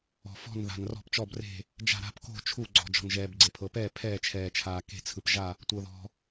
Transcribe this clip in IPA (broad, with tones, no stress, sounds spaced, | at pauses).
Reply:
ɔ̤˩ f ɔ̤˧˩ n ð a̤˩ n r ɔ̤˧˩ p t͡ʃ ɔ˧˩ b r e̤˧˩ | d͡ʒ a̤˧˩ ɾ a̤˧˩ p k o̤˧˩ t͡ʃʰ u˧˩ ɡ͡ǀ ɔ̤˩ d͡ʒ ɔ̤˩ n ʒ ɛː˩ b ɡ͡ǀ e˩ pʰ ɤ˩ p ɛː˧˩ pʰ ɛː˧˩ t͡ʃʰ ɛː˩ t͡ʃʰ aː˩ k e̤˧˩ t͡sʰ ɯ˩ p ʒ a˧˩ | tʷ ɤ˩ ð ɔ̤˩